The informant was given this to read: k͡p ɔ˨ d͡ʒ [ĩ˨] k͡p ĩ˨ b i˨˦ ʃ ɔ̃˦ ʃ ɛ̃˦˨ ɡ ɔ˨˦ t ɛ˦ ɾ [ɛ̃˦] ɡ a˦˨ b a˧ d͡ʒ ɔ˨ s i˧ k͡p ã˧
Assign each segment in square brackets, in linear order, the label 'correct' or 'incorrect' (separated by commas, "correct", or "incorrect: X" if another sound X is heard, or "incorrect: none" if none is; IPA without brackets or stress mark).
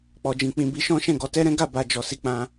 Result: correct, correct